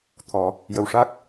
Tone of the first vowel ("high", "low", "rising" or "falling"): low